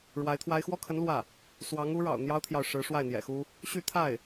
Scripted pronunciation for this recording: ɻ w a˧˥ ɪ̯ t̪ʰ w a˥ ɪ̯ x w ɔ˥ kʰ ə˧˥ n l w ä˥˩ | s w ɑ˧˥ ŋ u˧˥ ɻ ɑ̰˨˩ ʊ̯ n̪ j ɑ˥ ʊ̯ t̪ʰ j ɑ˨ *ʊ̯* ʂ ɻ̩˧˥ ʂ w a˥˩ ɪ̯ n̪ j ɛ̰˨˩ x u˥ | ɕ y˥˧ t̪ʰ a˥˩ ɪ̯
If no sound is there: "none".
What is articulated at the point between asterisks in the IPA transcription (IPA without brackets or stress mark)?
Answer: ʊ̯